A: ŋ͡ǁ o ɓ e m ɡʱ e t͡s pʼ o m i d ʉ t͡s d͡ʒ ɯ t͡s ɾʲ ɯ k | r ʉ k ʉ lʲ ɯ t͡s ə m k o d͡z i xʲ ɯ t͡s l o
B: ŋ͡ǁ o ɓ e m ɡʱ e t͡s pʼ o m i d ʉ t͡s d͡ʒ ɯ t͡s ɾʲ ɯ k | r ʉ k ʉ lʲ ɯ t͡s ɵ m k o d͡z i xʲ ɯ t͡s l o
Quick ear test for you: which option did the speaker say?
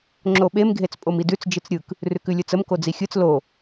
A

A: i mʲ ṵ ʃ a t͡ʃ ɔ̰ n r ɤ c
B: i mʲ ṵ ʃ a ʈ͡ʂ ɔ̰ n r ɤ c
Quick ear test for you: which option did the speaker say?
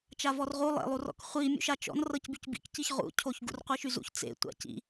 A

